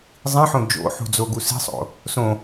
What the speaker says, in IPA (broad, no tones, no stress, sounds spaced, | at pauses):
zˤ ĩ ħ õ d͡ʒ o̰ ħ ṳ d͡z o ɡ u s i̤ sˤ o̰ | s õ